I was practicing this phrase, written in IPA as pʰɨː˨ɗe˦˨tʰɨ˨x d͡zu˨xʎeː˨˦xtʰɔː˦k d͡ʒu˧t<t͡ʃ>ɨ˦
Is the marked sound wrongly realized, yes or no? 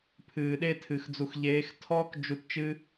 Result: no